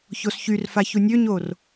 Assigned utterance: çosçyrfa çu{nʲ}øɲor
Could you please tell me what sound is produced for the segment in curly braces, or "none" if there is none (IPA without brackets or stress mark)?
nʲ